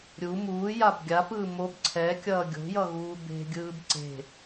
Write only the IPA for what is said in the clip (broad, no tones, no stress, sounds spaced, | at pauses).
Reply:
ɾʲ u m uː j a b ɡʲ a p ɯː m o b ǀʰ ɛ kʲ ʌː ɡʲ o̤ j ʌ ɣ uː b e̤ ɡʲ ɯː b ǀ e̤